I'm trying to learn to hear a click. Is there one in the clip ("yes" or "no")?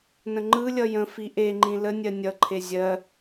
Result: yes